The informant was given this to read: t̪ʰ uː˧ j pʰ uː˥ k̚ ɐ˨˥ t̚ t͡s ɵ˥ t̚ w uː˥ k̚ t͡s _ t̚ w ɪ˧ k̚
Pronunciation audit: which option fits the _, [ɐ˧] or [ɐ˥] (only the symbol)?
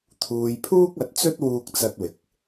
ɐ˥